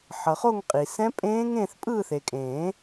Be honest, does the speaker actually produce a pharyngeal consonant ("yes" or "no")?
yes